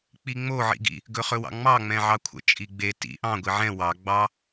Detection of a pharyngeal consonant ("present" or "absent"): present